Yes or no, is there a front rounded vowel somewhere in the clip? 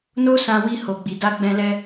no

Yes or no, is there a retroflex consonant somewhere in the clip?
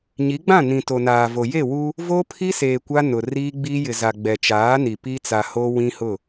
no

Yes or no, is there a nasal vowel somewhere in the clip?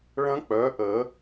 yes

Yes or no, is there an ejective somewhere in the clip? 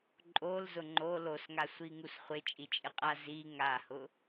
yes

